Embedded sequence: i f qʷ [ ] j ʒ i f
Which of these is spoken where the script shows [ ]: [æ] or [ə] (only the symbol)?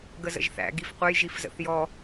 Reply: ə